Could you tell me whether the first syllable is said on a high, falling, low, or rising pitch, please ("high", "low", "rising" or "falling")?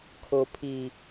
low